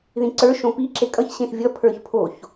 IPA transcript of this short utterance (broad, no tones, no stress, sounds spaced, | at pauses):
ð ĩ ǀ ə˞ ʃ õ p i ǁ e kʼ ʌ ç ɕ ẽ x vʲ ʌ pʰ ə˞ ç pʰ o ç